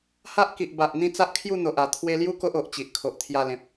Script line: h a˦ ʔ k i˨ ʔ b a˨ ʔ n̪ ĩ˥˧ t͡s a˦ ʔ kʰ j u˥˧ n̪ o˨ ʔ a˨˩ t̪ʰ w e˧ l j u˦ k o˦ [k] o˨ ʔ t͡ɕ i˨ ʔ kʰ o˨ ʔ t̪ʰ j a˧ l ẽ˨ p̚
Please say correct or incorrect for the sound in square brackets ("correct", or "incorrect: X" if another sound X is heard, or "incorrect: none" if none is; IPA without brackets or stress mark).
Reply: incorrect: ʔ